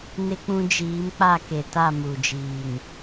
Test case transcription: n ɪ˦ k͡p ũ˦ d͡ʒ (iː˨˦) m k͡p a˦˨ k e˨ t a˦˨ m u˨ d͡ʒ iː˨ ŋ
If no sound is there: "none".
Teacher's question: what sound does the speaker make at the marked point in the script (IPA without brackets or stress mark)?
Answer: iː˨˦